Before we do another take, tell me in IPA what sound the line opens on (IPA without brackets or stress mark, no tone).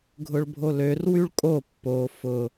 ɡʱ